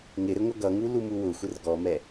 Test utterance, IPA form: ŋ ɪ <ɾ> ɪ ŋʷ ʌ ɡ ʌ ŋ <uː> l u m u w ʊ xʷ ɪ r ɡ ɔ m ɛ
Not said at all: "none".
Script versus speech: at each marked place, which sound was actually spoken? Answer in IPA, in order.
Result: ɾ, u

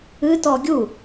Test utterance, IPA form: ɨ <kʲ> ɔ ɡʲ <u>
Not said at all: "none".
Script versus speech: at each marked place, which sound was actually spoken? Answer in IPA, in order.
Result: t, u

